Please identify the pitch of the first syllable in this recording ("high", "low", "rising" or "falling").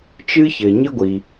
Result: high